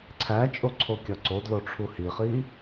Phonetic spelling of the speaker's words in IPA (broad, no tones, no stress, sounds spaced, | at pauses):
ǀʰ æ t͡ʃʼ o ǀʰ o kʲ ɒ ǀ o d l o ʈ͡ʂʰ u h i χ i